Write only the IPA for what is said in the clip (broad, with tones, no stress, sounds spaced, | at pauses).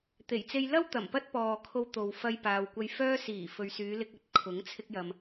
t̪ e˨˩ j t͡s e˧ j l ɐ˥ w t̪ ɐ˨˩ m p ɐ˥ t̚ p ɔː˨ kʰ o˧ w t̪ o˨ w f ɐ˧ j p aː˨ w kʷ ɐ˧ j f œː˥ s iː˨˩ f ɵ˨ ɥ s yː˨˧ l ɪ˧ k̚ ɐ˨˥ t̚ kʰ ʊ˨˥ ŋ t͡sʰ ɪ˧ k̚ j ɐ˨ m